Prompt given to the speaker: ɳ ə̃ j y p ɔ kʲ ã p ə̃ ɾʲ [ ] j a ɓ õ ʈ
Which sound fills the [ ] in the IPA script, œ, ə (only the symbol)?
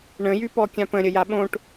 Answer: ə